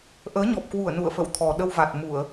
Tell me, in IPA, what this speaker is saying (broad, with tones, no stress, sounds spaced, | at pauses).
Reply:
ʔ əː˨˦ ɲ ɔ˨˩ p̚ k w u˧˩ ə̯ n ṵ˧˨ ə̯ f ə̰˧˨ w t̪ʰ ɔ˨˩ ɗ ə˧ w v a˨˩ t̚ m u˧˩˨ ə̯